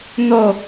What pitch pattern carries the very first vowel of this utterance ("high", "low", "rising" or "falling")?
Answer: falling